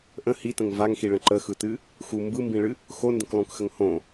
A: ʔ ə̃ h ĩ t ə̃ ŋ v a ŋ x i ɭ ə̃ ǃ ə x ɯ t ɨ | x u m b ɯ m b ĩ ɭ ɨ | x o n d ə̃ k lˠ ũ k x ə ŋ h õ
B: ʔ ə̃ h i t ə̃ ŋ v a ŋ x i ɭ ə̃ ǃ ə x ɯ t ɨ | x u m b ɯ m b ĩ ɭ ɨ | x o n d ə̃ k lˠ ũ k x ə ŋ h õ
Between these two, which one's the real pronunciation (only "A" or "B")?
B